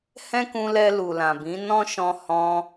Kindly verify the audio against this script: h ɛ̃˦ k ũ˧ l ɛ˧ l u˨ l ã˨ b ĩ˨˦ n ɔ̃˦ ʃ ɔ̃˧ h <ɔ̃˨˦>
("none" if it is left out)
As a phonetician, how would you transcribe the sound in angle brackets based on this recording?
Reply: ɔ̃˧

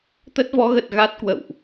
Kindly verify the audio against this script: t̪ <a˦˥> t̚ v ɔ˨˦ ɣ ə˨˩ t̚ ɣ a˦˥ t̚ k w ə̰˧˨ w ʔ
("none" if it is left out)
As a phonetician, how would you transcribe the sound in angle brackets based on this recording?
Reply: ə˦˥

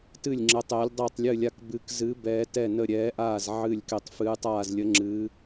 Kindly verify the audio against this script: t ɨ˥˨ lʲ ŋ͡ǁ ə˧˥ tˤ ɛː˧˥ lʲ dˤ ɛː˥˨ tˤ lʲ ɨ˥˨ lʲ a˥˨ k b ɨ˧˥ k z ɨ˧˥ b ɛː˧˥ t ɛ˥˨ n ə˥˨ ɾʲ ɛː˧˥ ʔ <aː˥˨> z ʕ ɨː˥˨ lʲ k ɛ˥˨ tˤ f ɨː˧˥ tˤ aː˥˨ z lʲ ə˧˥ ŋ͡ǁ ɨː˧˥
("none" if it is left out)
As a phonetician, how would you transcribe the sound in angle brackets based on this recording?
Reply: aː˥˨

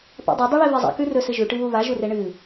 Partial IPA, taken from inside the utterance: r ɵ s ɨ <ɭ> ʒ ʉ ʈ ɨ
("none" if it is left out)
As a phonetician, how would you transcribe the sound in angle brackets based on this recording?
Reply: none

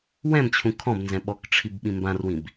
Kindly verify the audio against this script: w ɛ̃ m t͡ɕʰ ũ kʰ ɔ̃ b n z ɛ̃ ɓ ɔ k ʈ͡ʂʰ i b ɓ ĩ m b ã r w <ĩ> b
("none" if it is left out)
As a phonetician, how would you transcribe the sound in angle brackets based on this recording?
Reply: ĩ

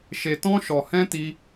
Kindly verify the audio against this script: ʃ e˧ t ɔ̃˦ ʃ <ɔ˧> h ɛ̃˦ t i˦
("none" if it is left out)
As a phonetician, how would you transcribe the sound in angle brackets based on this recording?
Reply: ɔ˧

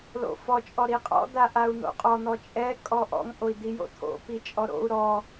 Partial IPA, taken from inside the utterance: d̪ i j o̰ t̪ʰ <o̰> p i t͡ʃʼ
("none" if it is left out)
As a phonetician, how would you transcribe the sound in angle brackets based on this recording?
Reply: o̰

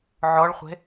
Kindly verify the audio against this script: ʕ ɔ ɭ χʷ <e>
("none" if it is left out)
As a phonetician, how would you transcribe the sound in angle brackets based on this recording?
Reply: e̤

